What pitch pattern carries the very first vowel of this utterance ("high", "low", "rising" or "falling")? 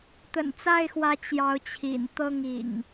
low